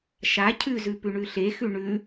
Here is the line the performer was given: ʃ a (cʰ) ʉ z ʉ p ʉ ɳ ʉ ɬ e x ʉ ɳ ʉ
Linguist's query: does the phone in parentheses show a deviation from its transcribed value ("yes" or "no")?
no